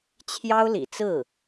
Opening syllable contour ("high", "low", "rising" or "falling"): high